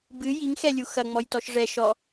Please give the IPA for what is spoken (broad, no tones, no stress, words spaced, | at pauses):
bɨ jiŋxɛlʲu xɐŋ͡mɔjtɔʃ ʐɛ ʃɔ